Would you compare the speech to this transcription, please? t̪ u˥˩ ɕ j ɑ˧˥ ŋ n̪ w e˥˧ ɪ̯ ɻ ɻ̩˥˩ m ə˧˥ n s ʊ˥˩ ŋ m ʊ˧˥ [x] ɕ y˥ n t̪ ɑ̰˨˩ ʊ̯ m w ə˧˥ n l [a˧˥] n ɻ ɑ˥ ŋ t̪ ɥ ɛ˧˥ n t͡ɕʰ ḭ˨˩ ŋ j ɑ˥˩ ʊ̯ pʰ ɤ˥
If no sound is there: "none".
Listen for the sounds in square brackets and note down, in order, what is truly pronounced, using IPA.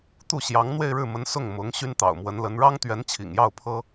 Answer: ŋ, ə˧˥

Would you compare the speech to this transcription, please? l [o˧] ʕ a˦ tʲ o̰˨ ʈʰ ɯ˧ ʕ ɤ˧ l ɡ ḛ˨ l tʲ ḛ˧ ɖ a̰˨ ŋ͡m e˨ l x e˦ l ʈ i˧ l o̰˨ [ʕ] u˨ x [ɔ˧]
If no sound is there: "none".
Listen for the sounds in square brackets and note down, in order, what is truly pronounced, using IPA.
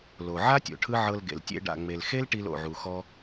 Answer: o˨, ʕ, ɔ˧

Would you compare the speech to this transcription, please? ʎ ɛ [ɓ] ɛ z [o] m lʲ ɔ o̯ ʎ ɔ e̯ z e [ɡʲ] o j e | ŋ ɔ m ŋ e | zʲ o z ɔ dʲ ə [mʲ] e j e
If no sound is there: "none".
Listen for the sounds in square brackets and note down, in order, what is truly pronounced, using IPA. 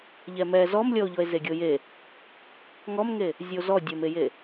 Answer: m, ɔ, ɡʲ, m

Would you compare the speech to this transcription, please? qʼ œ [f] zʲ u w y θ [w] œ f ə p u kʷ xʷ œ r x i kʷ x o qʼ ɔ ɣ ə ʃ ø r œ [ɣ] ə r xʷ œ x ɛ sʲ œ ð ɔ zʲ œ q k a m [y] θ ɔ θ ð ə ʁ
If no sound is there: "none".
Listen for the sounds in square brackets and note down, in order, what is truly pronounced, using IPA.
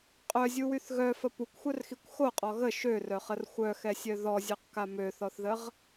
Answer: none, ɣ, χ, ø

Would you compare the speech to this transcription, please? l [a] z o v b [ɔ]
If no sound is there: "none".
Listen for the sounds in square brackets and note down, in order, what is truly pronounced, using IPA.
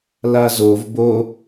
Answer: a, o

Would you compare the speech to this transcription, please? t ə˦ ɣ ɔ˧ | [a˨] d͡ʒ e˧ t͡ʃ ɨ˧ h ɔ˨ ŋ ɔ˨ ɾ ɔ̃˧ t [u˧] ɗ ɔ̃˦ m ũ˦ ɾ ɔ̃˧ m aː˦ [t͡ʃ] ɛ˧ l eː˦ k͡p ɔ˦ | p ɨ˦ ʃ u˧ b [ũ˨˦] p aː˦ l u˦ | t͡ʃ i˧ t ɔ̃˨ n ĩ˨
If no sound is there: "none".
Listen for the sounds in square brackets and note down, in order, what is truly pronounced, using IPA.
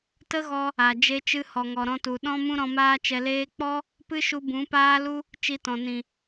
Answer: a˨, u˨, t͡ʃ, ũ˨˦

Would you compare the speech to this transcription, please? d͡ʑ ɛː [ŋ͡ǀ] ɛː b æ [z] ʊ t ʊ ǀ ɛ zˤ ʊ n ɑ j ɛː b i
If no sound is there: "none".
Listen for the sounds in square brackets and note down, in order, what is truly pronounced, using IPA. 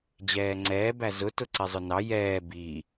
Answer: ŋ͡ǀ, z

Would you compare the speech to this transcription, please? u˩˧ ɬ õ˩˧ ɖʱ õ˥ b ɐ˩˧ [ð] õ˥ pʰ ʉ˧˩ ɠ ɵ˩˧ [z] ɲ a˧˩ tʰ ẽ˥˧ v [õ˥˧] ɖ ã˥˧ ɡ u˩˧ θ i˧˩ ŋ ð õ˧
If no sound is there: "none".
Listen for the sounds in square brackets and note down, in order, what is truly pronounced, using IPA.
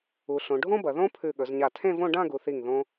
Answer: ð, z, õ˥˧

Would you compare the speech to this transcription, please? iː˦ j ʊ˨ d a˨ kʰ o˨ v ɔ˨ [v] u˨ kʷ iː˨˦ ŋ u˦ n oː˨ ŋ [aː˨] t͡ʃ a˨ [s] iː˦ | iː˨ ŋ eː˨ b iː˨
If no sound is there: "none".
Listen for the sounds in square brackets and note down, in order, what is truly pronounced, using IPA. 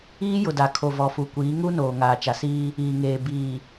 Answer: f, aː˨, s

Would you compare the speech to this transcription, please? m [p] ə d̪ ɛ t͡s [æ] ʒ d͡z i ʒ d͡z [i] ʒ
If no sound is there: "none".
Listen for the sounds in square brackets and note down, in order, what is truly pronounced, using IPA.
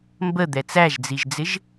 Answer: b, æ, ɪ

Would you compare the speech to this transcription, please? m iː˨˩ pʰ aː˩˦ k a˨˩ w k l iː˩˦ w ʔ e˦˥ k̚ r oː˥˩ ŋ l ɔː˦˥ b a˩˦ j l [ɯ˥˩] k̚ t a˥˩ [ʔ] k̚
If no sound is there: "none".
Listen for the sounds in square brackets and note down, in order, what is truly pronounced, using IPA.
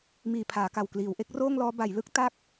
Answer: ɯ˥˩, none

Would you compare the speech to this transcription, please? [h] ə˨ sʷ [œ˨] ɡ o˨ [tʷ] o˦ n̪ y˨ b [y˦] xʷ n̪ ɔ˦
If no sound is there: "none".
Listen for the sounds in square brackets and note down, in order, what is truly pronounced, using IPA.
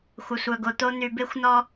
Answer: xʷ, œ˨, t̪, e˦

